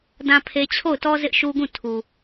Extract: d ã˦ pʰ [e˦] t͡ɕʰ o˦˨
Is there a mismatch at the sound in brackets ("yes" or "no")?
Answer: no